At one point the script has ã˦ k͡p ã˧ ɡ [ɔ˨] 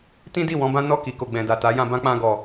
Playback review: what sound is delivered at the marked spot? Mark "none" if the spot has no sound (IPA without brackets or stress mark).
ɔ˨